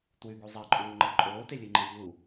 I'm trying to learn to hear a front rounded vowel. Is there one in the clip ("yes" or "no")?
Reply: no